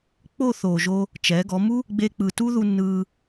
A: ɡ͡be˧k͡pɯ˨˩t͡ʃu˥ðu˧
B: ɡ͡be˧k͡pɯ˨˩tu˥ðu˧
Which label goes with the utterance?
B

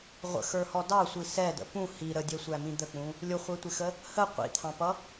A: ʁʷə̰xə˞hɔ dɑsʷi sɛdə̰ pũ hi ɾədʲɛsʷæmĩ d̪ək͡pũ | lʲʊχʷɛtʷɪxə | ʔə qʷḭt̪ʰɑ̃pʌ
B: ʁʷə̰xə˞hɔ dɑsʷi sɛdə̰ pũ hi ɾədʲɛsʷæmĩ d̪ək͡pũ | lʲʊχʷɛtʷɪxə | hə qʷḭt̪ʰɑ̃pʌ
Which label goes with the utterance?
B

